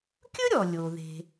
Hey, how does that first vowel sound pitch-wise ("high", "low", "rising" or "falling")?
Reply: high